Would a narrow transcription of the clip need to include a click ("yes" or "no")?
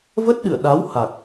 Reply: no